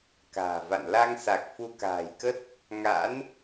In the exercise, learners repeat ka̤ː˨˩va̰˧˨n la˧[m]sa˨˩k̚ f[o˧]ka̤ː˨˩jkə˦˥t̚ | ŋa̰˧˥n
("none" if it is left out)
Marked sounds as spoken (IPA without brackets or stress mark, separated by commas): ŋ, u˧